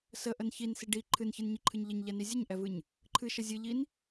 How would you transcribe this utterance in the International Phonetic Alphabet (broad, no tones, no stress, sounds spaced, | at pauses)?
s ə ʔ ə n ç i n s i ɖ i ǃʰ ɨ n ç ɨ n ɲ i ǃʰ ɨ ɲ ʎ ə ɲ ʎ ɛ n i zʲ ə ɲ ʔ ɛ v ɨ ɲ | ǃʰ ɨ ʃ ə zʲ ɨ ʎ i n